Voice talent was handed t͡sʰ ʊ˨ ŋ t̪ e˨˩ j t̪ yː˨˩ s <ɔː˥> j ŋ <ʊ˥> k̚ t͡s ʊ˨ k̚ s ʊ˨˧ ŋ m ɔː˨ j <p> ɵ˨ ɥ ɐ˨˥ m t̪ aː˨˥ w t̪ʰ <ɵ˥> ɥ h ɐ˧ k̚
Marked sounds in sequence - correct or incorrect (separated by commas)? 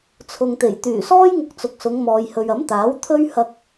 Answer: correct, incorrect, incorrect, correct